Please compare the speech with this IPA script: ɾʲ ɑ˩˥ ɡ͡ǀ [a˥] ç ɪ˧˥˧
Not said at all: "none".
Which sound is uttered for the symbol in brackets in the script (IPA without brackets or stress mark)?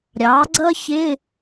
ʌ˥